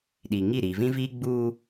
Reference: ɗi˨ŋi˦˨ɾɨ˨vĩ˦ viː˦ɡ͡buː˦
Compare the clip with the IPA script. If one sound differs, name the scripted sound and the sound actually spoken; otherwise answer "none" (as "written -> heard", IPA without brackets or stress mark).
ɨ˨ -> i˨